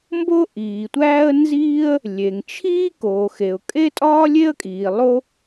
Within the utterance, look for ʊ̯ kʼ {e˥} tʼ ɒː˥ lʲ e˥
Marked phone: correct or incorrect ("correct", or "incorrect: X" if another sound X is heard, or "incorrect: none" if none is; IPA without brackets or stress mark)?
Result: correct